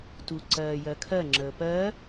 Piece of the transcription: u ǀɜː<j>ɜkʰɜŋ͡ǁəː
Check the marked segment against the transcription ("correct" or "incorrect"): correct